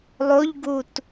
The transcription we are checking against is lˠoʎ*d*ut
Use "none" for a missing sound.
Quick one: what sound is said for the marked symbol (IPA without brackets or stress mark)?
ɡ